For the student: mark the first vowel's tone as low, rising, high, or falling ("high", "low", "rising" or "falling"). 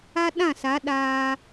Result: high